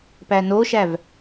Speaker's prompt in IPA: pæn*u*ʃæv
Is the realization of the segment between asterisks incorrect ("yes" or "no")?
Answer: yes